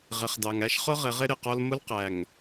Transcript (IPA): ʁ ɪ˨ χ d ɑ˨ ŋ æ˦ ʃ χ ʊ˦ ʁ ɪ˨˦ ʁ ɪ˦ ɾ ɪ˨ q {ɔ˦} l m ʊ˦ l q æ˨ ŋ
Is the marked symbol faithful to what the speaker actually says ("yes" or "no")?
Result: yes